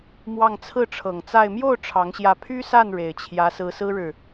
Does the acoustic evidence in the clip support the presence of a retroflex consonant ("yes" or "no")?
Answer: yes